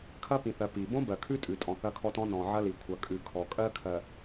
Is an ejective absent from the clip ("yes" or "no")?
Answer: no